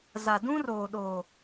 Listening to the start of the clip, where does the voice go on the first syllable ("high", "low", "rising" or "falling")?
low